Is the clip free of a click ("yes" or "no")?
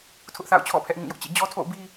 yes